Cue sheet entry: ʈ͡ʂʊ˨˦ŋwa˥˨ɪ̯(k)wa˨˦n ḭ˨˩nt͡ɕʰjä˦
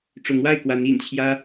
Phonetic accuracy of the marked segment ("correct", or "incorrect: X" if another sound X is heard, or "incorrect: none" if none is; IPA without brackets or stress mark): correct